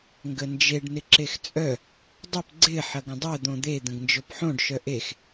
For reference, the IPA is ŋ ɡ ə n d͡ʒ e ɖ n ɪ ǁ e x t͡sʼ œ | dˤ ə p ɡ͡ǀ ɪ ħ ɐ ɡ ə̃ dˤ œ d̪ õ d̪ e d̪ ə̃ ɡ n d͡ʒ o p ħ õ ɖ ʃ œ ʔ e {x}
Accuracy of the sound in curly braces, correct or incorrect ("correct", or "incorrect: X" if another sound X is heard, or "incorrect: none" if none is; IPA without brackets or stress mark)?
correct